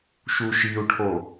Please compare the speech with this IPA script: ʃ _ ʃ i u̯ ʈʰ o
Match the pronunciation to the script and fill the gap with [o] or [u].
u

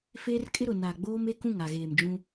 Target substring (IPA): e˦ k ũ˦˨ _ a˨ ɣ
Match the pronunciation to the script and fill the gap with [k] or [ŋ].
ŋ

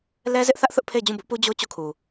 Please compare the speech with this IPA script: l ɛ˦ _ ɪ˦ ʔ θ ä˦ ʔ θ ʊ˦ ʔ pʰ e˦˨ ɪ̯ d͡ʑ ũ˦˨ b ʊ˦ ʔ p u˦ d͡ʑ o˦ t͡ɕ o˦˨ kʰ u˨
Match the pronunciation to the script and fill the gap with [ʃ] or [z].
z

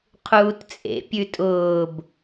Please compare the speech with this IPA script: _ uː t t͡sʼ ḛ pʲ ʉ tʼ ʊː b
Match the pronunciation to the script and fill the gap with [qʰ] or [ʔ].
qʰ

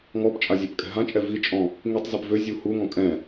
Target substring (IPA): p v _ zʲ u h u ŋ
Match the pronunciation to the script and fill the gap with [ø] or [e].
ø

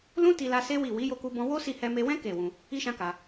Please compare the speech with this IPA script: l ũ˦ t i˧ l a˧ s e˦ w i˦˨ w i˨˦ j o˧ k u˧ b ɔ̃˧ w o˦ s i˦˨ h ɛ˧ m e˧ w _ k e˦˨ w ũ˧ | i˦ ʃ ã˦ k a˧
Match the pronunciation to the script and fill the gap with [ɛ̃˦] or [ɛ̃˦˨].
ɛ̃˦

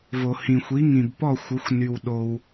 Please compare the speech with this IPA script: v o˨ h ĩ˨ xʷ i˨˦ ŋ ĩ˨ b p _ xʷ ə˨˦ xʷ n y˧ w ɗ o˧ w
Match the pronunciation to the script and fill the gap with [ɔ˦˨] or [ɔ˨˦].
ɔ˦˨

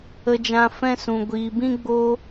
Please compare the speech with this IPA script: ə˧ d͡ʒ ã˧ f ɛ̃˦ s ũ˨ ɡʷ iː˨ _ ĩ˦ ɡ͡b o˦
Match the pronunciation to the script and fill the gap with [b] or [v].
b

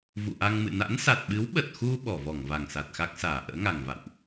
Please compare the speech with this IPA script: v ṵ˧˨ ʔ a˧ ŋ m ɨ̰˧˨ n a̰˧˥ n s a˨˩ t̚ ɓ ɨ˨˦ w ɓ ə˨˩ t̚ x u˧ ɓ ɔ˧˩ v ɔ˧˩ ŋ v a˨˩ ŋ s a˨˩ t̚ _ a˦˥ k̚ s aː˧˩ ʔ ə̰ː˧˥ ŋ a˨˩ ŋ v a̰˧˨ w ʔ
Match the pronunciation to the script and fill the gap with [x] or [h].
x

